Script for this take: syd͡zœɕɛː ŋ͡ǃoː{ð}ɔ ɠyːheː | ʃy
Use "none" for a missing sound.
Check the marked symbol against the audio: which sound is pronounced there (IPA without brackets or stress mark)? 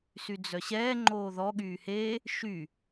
ð